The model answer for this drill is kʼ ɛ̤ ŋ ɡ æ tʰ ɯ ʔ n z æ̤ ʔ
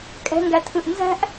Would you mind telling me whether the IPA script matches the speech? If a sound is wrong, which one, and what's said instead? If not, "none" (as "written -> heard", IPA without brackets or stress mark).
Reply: none